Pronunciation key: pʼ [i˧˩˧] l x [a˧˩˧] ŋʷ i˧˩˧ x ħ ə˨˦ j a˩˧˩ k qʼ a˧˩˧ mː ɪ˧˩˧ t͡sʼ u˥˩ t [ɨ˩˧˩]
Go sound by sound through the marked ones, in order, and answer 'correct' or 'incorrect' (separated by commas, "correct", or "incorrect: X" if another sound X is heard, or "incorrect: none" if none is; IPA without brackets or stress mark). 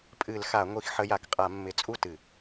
incorrect: ɨ˧˩˧, correct, incorrect: ɨ˧˩˧